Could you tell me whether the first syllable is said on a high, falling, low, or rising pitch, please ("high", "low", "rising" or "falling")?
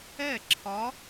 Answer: falling